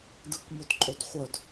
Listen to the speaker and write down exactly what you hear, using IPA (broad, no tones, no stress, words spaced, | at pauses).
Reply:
dɯkmotǃʼodχʷœd